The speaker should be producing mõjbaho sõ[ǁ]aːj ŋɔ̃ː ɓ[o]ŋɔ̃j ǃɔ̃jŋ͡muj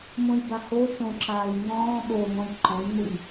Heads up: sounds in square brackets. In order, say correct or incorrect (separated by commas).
correct, correct